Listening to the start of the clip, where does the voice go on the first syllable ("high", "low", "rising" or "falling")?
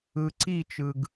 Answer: low